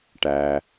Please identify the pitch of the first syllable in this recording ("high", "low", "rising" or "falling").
low